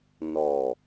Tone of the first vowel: low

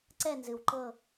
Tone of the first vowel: falling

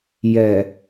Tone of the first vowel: low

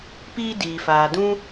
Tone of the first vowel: high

